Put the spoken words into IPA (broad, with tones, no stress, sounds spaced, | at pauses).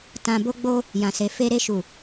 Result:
t ã˧ b o˦ ɡ͡b o˦ | j ã˨ s e˨ f e˧ ɾ e˧ ʃ u˨